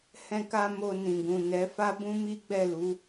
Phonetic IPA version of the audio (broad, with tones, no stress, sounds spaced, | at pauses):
h ɛ̃˧ k a˧ m o˧ n ĩ˨ ɡ ũ˨ n ɛ˨˦ f a˦ b ũ˦ m i˦ ɡ͡b ɛ˦˨ l u˨˦